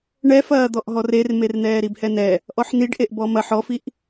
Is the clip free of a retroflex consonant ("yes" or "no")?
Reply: no